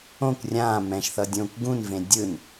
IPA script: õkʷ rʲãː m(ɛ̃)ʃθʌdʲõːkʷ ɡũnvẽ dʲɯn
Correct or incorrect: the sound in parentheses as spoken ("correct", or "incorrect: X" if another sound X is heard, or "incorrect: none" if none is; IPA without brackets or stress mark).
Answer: correct